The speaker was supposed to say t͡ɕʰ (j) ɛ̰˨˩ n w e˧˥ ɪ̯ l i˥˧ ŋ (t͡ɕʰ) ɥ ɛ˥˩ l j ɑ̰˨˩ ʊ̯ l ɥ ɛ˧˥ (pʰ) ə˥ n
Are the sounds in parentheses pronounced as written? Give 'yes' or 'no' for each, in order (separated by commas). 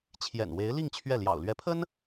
yes, yes, yes